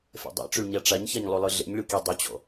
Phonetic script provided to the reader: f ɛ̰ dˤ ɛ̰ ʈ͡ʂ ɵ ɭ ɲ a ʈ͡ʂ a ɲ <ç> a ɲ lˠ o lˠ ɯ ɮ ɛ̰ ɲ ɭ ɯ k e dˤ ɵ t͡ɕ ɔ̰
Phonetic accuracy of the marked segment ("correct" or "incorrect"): correct